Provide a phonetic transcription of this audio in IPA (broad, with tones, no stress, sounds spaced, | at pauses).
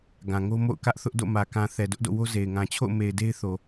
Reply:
ɡ ã˨ ŋ o˦ m o̰˦˨ ʊ̯ k ä˦ ʔ θ ʊ˦ ʔ d o̰˦˨ m ä˨ k ã˨ θ ɛ˨ d ʊ˦ ʔ d o̰˦˨ w o˦ z e˨ ɪ̯ ŋ ã˨ t͡ɕʰ o̰˦˨ ʊ̯ m e˨ ɪ̯ d e˦ ɪ̯ θ o˨